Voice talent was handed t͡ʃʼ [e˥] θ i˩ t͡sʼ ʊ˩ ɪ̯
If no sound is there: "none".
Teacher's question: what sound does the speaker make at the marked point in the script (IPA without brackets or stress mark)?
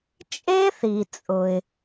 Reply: e˥